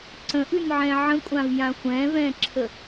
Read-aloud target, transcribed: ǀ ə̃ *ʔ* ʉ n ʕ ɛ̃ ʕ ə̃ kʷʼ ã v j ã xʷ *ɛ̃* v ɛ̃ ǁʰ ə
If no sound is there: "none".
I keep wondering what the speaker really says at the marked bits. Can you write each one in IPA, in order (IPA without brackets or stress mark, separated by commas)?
ʔ, ɛ̃